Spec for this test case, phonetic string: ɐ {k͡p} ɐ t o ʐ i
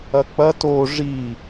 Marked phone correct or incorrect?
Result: correct